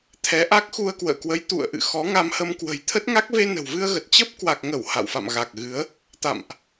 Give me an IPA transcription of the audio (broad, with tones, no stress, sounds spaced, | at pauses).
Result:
t̪ʰ ɛ˨˦ ʔ a˦˥ k̚ x u˧ ə̯ k w ə̰ː˧˨ k w ə˨˦ j t̪ ṵ˧˨ ə̯ ʔ ɨ̰˧˨ x ɔ˨˦ ŋ a˧ m h ə˧ m k w ə̤˨˩ j t̪ʰ ə˦˥ t̚ ŋ a˦˥ k̚ v e˧ n ə̤˨˩ w v ɨ˧ ə̯ ɣ ə˨˩ t̚ t͡ɕ ə˦˥ p̚ k w a˨˩ k̚ ŋ ə˧˩ w h a̰˧˨ w f a̰˧˨ m ɣ a˨˩ k̚ ɣ ɨ˨˦ ə̯ | t̪ a̰˧˨ m ʔ